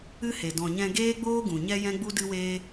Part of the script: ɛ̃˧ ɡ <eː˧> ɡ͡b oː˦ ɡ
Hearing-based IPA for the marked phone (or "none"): eː˦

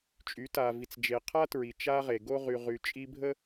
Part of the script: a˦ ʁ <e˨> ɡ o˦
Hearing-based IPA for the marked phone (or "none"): e˨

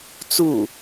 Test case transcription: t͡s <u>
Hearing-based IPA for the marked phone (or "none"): u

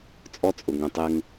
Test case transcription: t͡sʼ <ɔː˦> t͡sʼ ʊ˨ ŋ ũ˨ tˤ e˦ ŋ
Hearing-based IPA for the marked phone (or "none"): ɔ˦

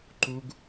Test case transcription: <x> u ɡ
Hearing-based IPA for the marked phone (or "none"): ǃ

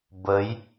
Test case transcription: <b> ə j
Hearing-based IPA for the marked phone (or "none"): b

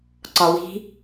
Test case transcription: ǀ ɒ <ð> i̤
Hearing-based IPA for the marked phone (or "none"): w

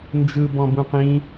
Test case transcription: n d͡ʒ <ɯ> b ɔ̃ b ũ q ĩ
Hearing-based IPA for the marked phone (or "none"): ɯ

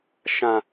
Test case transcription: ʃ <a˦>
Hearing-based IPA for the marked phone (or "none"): ã˦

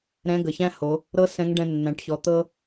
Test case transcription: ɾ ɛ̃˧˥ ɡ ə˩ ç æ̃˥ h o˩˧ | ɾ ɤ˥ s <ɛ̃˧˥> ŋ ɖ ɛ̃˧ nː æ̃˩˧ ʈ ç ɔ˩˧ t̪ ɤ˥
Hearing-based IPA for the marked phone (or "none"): ɛ̃˧˥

